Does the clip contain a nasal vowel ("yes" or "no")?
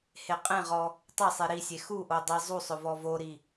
yes